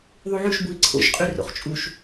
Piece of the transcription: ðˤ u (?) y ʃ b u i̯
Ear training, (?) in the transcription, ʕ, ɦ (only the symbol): ʕ